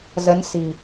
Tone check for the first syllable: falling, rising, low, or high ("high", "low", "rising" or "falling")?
rising